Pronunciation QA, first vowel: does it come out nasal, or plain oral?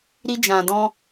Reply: oral